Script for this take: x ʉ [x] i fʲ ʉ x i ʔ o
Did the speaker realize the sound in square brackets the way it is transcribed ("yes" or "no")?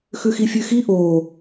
yes